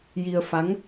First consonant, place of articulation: palatal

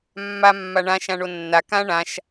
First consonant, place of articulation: labial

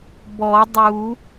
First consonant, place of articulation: labial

